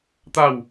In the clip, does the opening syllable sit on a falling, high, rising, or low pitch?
falling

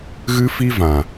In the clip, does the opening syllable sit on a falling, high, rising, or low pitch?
high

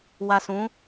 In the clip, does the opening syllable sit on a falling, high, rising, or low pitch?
low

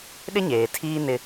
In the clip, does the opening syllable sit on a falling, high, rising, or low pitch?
high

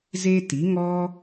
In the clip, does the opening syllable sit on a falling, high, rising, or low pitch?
high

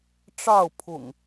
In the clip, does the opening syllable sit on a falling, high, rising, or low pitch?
falling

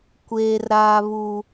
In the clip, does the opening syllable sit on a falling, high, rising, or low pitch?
high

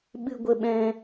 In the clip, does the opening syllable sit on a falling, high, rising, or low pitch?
high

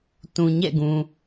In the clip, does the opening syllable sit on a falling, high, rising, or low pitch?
low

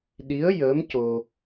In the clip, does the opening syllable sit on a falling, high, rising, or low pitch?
rising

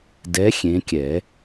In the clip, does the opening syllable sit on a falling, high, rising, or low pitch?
rising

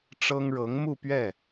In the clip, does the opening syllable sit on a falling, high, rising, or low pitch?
high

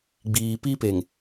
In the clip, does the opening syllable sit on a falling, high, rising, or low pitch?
low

